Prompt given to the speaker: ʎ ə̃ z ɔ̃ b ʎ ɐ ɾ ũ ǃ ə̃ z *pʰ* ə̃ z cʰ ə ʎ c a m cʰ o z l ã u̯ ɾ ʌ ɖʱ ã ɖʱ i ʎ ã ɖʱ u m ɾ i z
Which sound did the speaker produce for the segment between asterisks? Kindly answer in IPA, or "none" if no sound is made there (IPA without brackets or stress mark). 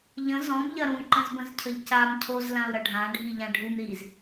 b